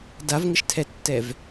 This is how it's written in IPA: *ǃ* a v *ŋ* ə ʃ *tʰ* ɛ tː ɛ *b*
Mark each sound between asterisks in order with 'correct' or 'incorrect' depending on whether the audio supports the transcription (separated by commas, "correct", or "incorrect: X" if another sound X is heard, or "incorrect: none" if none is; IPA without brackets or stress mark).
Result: incorrect: d, correct, correct, incorrect: v